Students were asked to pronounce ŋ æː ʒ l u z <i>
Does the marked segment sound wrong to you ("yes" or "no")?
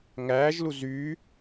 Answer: yes